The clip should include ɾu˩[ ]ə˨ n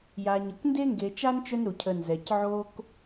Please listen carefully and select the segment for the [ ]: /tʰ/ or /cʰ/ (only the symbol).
cʰ